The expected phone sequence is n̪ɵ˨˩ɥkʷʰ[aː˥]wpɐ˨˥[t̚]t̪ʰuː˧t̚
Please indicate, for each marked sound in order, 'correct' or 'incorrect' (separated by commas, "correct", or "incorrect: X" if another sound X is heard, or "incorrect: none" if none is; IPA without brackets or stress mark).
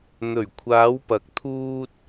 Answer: incorrect: aː˨˧, incorrect: k̚